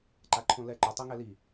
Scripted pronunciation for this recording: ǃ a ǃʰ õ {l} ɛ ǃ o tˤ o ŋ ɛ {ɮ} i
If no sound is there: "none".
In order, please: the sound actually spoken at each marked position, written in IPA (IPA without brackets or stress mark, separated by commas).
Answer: l, l